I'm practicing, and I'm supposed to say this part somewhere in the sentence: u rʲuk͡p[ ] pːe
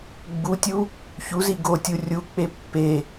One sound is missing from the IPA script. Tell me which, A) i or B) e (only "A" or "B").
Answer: B